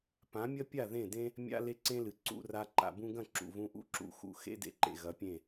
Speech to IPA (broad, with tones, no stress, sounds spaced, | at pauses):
p ã˨˦ mʲ ɐ˦ pʲ a˦˨ ð ẽ˦˨ d ẽ˦ | mʲ a̰˦ l e˦ ǀ ẽ˦ l ɨ˨ ǀ ṵ˧ r a˧ ǃ a̰˨ b ũ˧ ɡ ɐ̃˦˨ ǁ ṵ˨ v ũ˧ ʔ ṵ˦ ǁ ṵ˨˦ x ṵ˨ x ḛ˦ d ḛ˧ ǃ ḛ˨ ɣ ɐ˨˦ pʲ ẽ˦˨